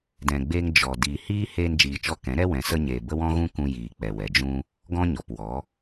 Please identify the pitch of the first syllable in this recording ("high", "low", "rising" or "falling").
low